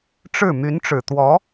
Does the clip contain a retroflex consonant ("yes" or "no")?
yes